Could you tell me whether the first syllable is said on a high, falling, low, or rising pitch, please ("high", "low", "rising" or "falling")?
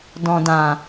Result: low